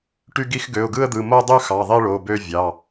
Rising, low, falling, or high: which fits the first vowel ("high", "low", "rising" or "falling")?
falling